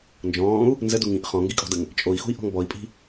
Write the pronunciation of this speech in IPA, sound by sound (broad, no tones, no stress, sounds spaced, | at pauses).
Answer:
n d͡ʒ ɔ̃ː u̯ | n z ə d u ŋ ĩ ʔ χ ɔ̃ ŋ ɡ i kʼ ɔ̤ d ə ŋ | t͡ʃʼ o i̯ x ṳ i̯ ʔ ɔ̤ ŋ b ɔ i̯ pʼ i̤